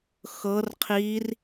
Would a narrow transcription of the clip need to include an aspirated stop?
yes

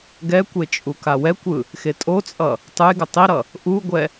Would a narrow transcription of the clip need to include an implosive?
no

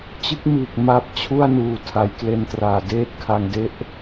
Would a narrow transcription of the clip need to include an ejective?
no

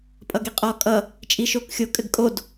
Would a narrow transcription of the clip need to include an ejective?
yes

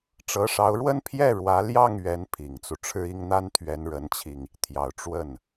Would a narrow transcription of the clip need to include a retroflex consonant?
yes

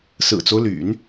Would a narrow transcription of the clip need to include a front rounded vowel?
yes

